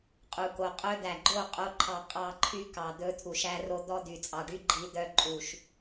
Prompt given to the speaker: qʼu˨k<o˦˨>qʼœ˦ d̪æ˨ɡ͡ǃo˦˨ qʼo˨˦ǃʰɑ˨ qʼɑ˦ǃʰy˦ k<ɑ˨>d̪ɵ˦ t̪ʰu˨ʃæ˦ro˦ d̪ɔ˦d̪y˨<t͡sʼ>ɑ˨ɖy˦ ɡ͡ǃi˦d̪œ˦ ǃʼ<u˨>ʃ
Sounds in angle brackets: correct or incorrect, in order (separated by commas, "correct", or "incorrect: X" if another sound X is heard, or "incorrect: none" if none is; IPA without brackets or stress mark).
incorrect: o˨, correct, correct, correct